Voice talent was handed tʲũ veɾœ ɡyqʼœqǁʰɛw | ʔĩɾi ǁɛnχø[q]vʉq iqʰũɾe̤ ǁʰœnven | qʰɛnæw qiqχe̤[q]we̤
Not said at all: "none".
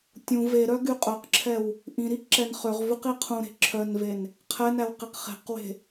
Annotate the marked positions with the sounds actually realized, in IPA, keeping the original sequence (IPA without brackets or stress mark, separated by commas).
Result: ʁ, q